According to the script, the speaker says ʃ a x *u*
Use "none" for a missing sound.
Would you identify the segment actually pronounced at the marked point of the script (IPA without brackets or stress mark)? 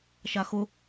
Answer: ʊ